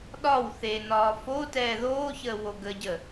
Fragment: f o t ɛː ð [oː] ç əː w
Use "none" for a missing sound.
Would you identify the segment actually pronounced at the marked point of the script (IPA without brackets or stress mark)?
oː